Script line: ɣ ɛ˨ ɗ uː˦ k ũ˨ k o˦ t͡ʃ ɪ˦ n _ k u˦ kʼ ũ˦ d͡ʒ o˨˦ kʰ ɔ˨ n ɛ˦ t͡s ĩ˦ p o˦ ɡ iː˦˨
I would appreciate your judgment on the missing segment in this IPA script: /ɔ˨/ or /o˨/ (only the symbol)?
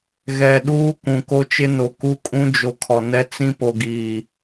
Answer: o˨